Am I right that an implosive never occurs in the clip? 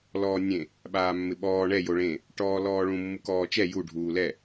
no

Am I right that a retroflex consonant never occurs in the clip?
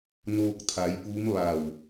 yes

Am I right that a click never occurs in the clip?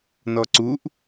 no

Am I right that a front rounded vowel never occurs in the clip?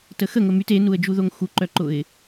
no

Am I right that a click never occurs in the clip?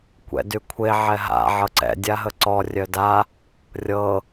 no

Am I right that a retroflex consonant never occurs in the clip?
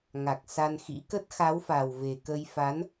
yes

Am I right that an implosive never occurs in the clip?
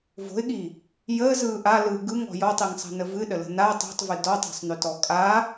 no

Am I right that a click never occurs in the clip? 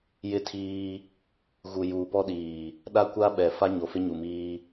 yes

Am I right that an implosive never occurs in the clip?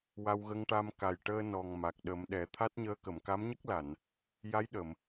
no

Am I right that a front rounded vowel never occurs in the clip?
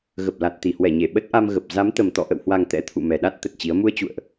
yes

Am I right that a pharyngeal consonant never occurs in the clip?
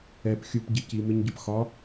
yes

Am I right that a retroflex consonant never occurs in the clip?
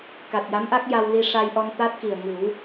no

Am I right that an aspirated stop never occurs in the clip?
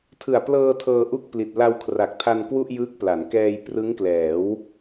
no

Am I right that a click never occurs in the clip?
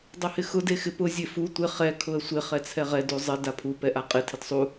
yes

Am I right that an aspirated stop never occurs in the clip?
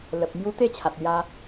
no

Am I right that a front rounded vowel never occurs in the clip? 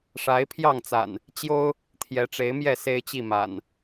yes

